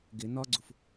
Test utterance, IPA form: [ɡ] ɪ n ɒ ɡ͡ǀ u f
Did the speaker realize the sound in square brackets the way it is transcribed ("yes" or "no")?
yes